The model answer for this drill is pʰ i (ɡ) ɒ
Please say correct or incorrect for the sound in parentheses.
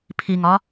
incorrect